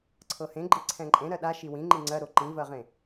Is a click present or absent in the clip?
present